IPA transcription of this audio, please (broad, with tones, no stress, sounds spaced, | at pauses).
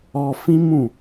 ɔ˧ f ĩ˦ m ũ˦˨